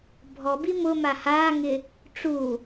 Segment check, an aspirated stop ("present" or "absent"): absent